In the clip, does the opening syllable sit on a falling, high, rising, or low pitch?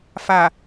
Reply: low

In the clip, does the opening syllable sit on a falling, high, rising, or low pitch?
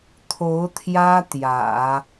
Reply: rising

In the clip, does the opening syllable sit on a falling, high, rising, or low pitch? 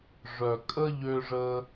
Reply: low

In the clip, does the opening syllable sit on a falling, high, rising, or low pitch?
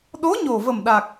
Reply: rising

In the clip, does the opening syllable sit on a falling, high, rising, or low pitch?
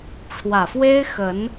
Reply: low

